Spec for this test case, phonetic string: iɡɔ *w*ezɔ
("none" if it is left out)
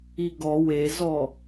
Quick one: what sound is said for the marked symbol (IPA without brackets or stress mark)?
w